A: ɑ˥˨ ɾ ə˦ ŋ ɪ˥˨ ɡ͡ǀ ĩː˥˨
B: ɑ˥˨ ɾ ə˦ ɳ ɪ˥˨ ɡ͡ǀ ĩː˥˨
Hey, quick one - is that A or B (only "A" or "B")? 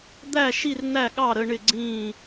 B